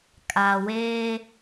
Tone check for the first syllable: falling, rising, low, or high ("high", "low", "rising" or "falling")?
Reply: low